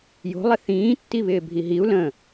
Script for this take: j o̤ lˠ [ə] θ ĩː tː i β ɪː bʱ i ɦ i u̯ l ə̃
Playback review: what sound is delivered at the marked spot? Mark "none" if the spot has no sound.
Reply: ɪ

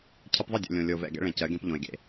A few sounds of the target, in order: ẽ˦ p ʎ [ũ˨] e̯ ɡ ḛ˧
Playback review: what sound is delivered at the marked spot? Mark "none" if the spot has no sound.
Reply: õ˨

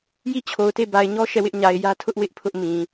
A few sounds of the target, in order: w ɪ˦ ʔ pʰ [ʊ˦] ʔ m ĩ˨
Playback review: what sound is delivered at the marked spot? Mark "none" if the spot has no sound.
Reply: ʊ˦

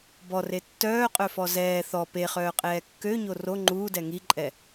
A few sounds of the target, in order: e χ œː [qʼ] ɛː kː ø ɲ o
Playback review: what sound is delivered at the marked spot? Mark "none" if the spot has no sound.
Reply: qʼ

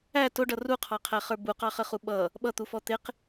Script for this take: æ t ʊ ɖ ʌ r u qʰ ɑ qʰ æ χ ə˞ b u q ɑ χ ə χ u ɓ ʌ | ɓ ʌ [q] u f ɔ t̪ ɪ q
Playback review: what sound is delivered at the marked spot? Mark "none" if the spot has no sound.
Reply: t̪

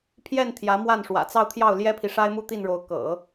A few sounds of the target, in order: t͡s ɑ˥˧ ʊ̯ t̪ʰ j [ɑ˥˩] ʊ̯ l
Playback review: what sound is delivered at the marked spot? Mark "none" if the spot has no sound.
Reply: ɑ˥˩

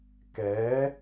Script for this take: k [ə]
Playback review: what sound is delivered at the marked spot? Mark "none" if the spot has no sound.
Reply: ɛ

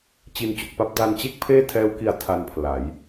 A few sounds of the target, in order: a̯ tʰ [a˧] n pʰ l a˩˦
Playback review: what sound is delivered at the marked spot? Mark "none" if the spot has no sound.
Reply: a˧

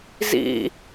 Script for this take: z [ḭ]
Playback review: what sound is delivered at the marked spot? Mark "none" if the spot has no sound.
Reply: ḭ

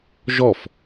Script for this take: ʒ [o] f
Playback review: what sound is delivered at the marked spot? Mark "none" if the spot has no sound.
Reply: ɔ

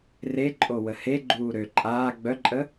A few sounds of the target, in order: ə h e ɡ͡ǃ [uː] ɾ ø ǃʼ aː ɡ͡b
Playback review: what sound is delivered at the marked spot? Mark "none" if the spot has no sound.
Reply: uː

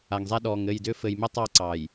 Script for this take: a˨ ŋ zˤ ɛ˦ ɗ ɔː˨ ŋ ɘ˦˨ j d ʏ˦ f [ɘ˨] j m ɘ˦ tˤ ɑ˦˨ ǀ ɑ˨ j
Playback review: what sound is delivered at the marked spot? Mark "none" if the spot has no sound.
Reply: ɘ˨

